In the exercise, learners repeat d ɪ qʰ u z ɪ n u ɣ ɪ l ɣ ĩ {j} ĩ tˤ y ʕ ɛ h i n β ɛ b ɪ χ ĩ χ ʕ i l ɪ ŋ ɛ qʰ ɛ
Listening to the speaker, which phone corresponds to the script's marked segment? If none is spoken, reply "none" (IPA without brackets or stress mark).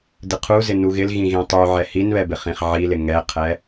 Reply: ɣ